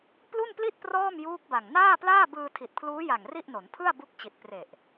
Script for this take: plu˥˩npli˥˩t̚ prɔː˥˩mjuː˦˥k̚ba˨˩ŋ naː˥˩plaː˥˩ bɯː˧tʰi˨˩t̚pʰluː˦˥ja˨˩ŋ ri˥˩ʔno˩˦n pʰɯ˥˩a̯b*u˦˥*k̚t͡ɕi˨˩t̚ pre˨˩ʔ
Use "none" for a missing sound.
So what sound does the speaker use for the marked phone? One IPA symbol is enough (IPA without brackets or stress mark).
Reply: u˦˥